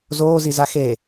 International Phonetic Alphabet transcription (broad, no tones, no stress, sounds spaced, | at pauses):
z oː z i z a x e